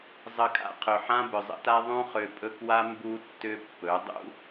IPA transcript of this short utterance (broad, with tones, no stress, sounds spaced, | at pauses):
zˤ ə˧ kʼ a̰˧ qʰ ɵ˨ ħ ã˦ b ʏ˨ zˤ ə̰˦ t a˦ ðˤ ũ˦ χ ø˧ pʼ ɵ˦ k w a˦ m b u˦ tː ʏ˦ pː ɵ˨˦ dˤ ṵ˦